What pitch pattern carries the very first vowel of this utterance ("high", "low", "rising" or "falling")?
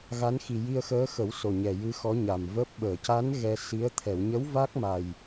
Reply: rising